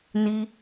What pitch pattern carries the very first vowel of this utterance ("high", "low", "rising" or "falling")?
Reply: high